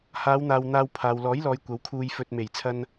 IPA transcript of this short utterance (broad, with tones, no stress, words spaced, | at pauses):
haː˨˧wn̪aː˨w n̪aː˧wpʰaː˨w lɔː˨˥jlɔː˨˧j kʷɐ˨˥wkʰuː˧jfɵ˧t̚ me˨˩jt͡sʰɐ˧n